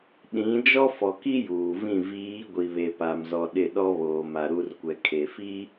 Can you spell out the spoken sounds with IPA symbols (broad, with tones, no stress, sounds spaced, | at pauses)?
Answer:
ɗ ĩ˨˦ d͡ʒ ɔ˦ f ɔ˨ k i˦ j uː˨ v ĩ˦˨ v iː˨˦ ɡʷ i˨ β e˨ p a˨ m z ɔ˦ ɗ ɪ˦˨ ɗ ɔ˦ β oː˨ m a˨ ɾ u˦ r kʷ ɛ˨ kʰ e˨ f i˦